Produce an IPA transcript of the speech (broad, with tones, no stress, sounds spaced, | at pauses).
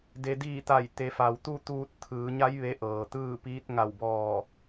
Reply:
d e˩ d iː˧˩ t̪ a˧˩ j t̪ e˩˧ f a˩ w t̪ u˥˨ t̪ uː˧ t̚ t̪ʰ ɯː˩˧ ɲ a˧˥ j ʋ e˧˥ ʔ ɤː˩ t̪ ɯː˥˨ p iː˧˥ t̚ ŋ a˧˩ w b ɔː˧˩